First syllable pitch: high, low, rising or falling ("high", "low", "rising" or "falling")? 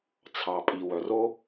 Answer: low